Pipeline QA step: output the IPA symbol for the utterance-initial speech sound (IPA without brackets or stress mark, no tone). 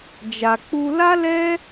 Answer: d͡ʒ